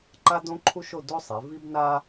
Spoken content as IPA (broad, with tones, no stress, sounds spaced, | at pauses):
ǃ a˥ d õ˥ ǃʰ u˥ ʃ o˥˧ d o˥ sˤ e˩˧ v i˥ b n a˥